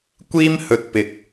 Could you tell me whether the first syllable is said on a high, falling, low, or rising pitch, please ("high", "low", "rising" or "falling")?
high